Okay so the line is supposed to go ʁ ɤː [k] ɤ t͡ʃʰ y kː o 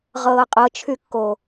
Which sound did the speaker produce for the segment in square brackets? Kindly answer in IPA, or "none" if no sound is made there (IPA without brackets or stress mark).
qʼ